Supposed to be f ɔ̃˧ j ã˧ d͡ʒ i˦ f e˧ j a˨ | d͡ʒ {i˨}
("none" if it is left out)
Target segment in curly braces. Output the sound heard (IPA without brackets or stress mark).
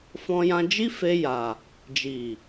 i˨